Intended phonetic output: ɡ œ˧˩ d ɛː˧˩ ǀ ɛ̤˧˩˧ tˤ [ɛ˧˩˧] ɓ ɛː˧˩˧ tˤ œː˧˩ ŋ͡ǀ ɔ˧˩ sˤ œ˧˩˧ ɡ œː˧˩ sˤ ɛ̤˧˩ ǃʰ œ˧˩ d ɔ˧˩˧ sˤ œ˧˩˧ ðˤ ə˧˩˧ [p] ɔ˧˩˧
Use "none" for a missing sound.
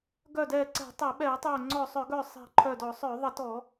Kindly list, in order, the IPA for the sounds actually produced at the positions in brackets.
ɛ˧˩˧, t

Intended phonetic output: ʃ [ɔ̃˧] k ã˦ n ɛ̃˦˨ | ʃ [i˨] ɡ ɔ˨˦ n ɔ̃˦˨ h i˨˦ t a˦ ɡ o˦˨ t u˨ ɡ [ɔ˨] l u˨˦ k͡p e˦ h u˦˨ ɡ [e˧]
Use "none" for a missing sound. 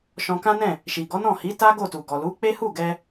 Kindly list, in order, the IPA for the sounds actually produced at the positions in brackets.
ɔ̃˧, i˨, ɔ˨, ɛ˧

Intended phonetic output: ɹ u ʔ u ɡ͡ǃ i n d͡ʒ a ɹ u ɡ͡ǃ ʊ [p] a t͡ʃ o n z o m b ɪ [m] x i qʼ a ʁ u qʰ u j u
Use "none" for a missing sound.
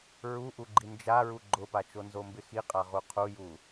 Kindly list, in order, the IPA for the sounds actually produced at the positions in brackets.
p, none

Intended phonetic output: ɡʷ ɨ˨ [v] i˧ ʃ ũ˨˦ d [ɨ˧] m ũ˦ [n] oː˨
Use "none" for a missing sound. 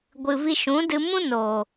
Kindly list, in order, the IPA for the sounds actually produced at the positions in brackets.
v, ɨ˧, n

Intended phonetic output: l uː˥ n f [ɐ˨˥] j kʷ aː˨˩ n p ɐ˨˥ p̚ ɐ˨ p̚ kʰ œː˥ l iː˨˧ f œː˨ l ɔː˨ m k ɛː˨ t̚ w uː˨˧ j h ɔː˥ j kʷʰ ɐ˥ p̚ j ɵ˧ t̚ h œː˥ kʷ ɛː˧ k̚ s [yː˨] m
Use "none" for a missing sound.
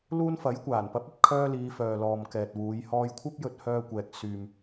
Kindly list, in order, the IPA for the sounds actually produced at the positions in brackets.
ɐ˨˥, yː˨

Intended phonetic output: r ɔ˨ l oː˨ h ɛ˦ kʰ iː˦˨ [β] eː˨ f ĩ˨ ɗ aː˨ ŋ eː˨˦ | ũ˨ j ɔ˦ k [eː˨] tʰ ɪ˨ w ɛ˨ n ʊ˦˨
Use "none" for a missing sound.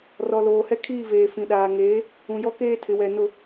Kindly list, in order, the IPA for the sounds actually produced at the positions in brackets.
v, eː˦

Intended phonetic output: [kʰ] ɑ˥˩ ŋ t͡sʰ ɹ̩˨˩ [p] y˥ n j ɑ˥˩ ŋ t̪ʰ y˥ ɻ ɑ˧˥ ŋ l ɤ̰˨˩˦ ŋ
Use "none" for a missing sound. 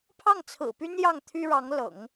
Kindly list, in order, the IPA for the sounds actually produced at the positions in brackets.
pʰ, p

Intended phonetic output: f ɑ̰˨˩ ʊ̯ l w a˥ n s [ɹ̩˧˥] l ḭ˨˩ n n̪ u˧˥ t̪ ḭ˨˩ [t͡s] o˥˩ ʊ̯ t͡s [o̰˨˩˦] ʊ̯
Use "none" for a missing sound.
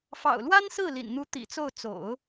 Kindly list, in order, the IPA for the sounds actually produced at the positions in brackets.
ɹ̩˥˩, t͡s, o̰˨˩˦

